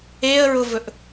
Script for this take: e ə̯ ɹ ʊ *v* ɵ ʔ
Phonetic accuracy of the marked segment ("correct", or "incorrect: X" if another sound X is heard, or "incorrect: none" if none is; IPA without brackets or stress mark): correct